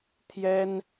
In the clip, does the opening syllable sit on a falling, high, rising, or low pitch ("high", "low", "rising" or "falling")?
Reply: high